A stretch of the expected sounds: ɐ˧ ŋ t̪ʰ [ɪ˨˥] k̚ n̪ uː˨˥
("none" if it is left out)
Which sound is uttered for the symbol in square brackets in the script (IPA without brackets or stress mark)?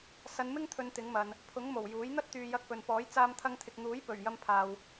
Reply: ɪ˨